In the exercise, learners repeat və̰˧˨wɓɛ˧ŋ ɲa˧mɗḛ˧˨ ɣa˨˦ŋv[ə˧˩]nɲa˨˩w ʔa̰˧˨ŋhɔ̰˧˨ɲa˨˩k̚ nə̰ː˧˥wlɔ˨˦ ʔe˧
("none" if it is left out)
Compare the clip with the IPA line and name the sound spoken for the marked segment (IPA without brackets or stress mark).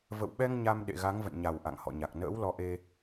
ə̰˧˨